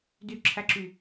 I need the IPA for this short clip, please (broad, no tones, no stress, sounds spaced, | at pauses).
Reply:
d y ǁʰ æ ǁ y